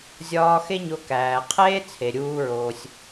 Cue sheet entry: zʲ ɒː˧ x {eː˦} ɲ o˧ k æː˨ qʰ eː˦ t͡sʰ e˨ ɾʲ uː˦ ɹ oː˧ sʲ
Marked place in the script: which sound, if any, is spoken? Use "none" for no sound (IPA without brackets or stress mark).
e˦